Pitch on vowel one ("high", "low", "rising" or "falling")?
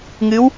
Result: rising